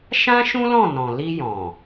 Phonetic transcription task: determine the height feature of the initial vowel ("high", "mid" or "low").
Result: low